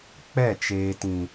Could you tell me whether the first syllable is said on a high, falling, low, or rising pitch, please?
falling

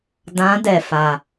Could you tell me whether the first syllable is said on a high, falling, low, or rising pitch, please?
rising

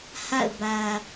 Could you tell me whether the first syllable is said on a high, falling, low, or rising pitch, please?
falling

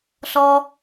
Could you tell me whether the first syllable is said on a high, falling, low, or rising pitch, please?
low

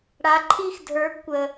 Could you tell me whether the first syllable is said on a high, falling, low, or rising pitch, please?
rising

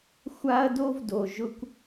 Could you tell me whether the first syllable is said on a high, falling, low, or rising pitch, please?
high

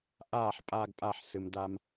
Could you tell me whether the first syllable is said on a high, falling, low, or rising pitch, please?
falling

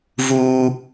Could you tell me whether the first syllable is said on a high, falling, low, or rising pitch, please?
high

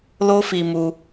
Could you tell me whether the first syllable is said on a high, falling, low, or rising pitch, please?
high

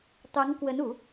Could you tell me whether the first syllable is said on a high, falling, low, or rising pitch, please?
rising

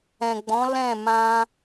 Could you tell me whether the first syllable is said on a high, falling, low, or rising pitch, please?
low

